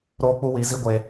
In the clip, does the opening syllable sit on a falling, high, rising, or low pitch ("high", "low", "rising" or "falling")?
high